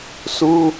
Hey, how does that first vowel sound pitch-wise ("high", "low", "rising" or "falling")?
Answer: high